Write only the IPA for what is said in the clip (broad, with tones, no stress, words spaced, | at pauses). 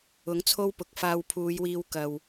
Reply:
ʊ˨˥ŋt͡sʰo˥wpʊ˨k̚ faː˧wpʰuː˨˧jwiː˧wkɐ˨w